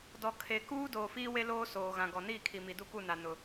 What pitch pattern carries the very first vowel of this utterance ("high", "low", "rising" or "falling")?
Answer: low